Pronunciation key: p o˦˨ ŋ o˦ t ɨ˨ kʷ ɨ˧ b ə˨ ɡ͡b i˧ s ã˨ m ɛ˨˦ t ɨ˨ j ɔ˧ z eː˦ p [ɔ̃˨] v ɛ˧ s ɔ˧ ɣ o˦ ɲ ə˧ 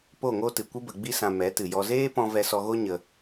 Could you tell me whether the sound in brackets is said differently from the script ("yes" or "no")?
yes